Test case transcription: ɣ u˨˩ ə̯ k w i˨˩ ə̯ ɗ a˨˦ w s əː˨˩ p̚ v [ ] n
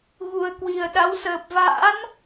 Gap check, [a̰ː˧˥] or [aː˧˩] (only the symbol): a̰ː˧˥